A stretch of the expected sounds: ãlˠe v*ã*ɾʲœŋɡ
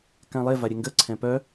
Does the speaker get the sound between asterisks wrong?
yes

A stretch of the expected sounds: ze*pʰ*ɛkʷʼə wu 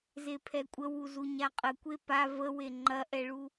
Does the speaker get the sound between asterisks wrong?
no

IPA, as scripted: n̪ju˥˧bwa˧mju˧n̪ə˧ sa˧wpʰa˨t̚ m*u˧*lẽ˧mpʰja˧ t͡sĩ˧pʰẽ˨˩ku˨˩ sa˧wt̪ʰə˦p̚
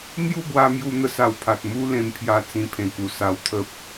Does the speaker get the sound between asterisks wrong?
yes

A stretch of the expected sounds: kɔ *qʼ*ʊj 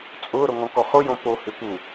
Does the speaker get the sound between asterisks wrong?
yes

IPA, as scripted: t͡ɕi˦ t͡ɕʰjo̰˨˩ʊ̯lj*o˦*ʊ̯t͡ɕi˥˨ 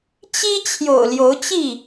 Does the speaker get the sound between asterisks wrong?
yes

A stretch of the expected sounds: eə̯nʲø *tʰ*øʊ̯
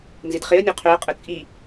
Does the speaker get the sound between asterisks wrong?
yes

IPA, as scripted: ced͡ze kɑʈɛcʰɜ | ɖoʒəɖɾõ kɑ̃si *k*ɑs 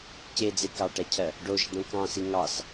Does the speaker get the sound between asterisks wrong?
yes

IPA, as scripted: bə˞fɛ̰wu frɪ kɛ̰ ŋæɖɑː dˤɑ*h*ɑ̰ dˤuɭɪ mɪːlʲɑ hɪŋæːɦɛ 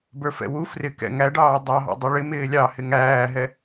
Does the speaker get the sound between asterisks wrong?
yes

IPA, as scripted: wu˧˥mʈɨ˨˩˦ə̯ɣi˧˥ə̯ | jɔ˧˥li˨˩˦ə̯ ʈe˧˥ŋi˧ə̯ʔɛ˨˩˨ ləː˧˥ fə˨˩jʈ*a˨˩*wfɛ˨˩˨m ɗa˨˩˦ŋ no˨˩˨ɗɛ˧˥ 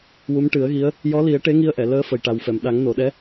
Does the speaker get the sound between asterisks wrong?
no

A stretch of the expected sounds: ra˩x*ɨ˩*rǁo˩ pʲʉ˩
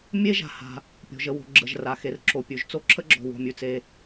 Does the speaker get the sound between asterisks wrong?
yes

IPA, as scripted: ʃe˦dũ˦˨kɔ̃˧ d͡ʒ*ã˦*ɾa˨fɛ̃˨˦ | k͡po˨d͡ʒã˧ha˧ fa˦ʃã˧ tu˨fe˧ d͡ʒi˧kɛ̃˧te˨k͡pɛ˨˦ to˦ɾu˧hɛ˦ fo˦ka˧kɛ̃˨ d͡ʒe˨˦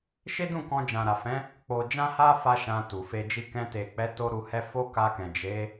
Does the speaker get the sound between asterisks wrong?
yes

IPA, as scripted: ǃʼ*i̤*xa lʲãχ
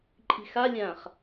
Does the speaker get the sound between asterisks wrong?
no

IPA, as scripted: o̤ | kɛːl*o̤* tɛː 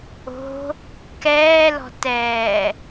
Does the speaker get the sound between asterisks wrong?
yes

